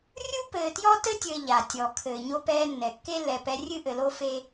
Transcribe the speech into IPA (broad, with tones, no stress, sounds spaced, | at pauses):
rʲ u˦ p ɘː˨ t j ɔ˦ t ɘ˦ tʲ ɘː˨ ʎ a˨ tʲ ɔ˨ kʰ ɘː˨ ɲ o˦ p ɛː˦ nː ɛ˨ kː e˦ lː ɛ˨ p ɛ˨˦ rʲ ɨ˦ ʔ ɘ˨ l o˦ f e˦